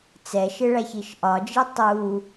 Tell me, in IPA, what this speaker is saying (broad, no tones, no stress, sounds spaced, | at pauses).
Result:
t͡s ɛ ʃ ɪ ɭ æ ç i ʃ ʔ ɒ d͡ʒ i tˤ u